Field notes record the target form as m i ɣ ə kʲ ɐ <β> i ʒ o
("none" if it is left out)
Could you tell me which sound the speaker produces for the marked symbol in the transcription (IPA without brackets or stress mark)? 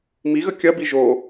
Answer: b